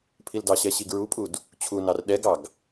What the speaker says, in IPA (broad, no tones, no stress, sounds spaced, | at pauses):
pʰ i l d ɑ ɕ ɛ ɕ i ɡ ɹ u pʼ u d | t͡ɕʰ u n ɑ r ɗ ɛ ɡ ɑ ɡ